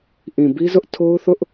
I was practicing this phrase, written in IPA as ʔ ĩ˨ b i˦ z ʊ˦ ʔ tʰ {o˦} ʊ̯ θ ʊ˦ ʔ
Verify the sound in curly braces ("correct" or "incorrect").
correct